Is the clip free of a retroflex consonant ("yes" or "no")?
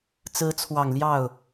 yes